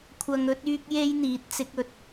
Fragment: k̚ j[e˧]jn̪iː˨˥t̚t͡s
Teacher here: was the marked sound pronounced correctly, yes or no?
no